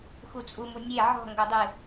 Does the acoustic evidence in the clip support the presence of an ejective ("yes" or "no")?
yes